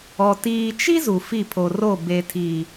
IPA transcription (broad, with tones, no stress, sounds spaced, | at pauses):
ɔ˨ t iː˨ t͡ʃ i˦ z u˨ f i˦˨ pʰ o˨ r o˦˨ b e˨ tʰ i˨